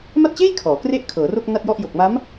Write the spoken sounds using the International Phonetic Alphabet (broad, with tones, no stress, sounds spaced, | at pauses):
m a˥˩ t̚ t͡ɕ eː˥˩ j kʰ ɔː˩˦ k r e˥˩ ʔ kʰ ɤː˩˦ r o˥˩ k̚ n a˥˩ t̚ j ɔ˥˩ ʔ j o˨˩ k̚ m a˦˥ m